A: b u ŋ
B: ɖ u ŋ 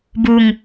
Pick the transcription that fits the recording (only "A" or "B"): A